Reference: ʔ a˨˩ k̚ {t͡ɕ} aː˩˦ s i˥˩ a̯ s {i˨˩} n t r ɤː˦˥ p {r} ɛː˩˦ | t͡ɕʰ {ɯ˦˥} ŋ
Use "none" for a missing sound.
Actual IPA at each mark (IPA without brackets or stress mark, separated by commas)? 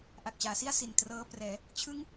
t͡ɕ, i˨˩, r, ɯ˦˥